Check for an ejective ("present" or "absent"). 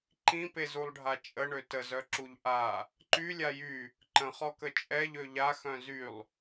present